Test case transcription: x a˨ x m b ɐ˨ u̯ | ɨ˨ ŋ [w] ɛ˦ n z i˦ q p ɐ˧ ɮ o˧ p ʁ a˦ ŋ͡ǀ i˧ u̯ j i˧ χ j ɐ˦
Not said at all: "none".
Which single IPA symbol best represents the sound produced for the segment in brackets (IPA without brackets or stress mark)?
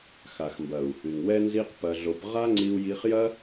w